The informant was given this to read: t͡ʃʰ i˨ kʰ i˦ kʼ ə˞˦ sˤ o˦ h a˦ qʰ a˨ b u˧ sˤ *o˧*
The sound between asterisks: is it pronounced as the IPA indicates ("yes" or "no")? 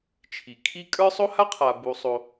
yes